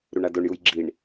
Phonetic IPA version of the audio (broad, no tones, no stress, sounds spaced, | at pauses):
ɾ u ɳ a d o ɳ j u j ɡ͡ǁ i ɳ